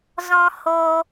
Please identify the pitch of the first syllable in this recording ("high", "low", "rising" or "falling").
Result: high